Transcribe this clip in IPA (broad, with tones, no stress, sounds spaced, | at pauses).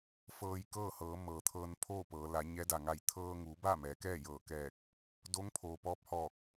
f ɤː˧ j k ɤː˥˨ h ɤː˩˧ m ɤː˩ t̪ʰ ɤː˧ n pʰ oː˥˨ p ɤː˩˧ l a˩˧ ɲ ɛː˧˥ d a˩ ŋ a˧˩ j t̪ʰ ɤː˧ ŋ uː˩˧ b a˥˨ m ɛː˩˧ k ɛː˥˨ j ɤː˧˩ k ɛː˧˩ k̚ | d o˧˥ ŋ pʰ oː˩ p ɔː˧ p̚ h ɔː˧˩ k̚